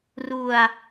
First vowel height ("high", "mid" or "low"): high